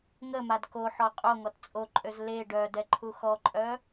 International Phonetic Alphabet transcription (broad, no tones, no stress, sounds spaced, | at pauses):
ŋ ə m a d k o ħ ɔ qʼ o ŋ ɔ t t͡sʼ o ǃʼ ø z l e ɖ œ d ɛ ǃʰ u x ɔ ǃʼ œ